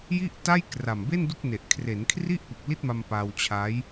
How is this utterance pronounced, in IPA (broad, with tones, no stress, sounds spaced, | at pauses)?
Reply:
j i˥˩ ʔ t a˥˩ j k r a˨˩ m b e˥˩ n d u˥˩ k̚ n e˨˩ ʔ kʰ r e˩˦ n kʰ r i˥˩ ʔ p u˨˩ k̚ l i˥˩ t̚ m a˧ m p a˧ w t͡ɕʰ a˦˥ j